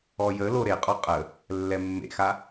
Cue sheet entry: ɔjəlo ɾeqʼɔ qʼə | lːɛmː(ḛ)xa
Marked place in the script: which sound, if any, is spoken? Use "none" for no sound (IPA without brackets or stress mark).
ḛ